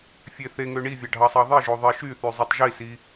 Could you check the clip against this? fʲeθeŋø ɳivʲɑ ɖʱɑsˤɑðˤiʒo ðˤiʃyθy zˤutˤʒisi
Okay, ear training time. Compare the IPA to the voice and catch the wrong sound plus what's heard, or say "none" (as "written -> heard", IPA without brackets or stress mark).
none